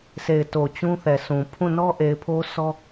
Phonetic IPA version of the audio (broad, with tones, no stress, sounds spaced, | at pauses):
s e˨ ɪ̯ t o˨ t͡ɕ ũ˦ θ ɛ˨ s ũ˨ pʰ ũ˦˨ n ɔ˦ ʔ e˨ ɪ̯ pʰ o˦ s ɔ˦